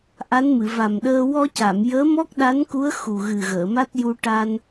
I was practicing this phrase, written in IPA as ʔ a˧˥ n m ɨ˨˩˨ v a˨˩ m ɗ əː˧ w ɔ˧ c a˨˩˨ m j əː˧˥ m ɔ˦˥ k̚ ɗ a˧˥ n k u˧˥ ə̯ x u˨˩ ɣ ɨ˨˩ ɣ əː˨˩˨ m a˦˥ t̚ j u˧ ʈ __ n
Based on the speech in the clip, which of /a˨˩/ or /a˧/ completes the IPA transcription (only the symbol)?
a˧